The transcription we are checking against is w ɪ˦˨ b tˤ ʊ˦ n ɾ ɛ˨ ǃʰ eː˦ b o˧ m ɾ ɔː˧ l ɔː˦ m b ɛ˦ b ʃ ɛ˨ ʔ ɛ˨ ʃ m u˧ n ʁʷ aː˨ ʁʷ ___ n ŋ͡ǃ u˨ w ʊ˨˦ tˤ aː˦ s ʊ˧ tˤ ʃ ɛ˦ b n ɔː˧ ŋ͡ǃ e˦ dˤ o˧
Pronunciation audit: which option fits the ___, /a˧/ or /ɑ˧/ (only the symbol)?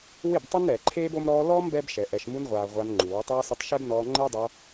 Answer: a˧